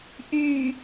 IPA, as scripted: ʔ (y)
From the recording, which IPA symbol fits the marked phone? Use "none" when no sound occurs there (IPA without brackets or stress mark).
y